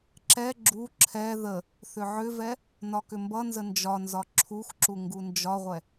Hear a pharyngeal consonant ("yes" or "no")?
yes